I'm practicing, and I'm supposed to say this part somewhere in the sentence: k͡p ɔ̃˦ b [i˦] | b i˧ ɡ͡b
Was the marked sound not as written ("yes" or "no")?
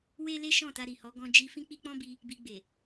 yes